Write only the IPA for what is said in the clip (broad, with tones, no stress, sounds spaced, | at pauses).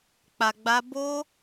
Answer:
k͡p a˧ ɡ͡b a˦ b o˦